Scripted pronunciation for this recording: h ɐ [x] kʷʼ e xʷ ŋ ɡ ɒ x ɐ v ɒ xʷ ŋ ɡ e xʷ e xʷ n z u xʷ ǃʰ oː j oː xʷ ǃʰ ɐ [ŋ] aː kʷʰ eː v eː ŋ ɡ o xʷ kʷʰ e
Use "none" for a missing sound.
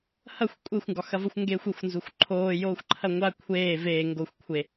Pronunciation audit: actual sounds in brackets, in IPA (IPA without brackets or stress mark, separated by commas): xʷ, ŋʷ